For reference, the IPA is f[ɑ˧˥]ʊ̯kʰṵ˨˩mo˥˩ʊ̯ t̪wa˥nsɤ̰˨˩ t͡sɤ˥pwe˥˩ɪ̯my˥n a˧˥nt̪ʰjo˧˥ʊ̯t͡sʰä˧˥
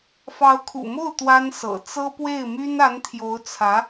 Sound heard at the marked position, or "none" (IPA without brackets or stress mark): ɑ˧˥